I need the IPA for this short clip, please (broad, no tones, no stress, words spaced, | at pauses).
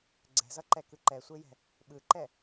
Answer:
ɡ͡ǀɛ̤zʌǃɛkɯ ǃɛsʷejɛ̤ | ɓɯǃɛ